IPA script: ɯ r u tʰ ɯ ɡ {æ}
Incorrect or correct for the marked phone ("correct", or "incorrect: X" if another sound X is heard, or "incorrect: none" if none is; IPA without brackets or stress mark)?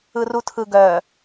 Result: incorrect: œ